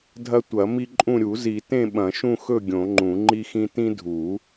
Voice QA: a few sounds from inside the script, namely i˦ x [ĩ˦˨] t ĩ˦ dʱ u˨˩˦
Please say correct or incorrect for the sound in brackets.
incorrect